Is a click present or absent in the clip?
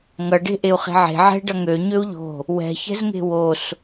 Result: absent